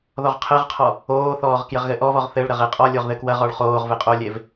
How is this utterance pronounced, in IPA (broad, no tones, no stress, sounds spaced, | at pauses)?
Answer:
ð ɔ ʁ qʰ ɛ ʁ qʰ ɔ | oː θ ɔː ʁ k j ɘ ʁ ɣ ɘ ʔ ɔ v ɔ ʁ θ ɘ ɭ ɾ ɐ ʁ e qʼ ɔ lʲ o ʁ ð ɘ k w ɐ ʁ ɔ ɭ χ oː ʁ v e qʼ o lʲ e v